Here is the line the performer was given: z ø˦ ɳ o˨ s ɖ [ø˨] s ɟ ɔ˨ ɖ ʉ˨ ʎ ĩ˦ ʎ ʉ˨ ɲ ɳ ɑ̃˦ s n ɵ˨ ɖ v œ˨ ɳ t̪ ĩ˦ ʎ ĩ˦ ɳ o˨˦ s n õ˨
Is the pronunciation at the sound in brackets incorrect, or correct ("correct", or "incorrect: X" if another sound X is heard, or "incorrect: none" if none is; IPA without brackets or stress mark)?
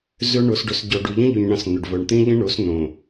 incorrect: ɵ˨